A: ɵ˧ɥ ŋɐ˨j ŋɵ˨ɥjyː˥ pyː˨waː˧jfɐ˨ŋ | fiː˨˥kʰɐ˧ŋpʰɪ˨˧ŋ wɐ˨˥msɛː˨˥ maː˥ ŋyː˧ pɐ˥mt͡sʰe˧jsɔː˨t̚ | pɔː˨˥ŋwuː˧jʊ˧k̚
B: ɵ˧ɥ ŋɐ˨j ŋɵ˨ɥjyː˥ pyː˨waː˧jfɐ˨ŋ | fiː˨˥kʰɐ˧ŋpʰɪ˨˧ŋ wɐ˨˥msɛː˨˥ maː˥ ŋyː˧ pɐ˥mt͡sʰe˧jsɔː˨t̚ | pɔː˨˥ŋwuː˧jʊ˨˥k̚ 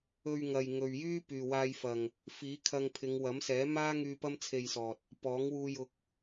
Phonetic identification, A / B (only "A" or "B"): B